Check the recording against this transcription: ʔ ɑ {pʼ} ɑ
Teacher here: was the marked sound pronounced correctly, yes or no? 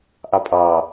yes